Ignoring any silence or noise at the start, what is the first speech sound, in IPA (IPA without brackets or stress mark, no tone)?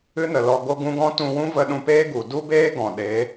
ɨ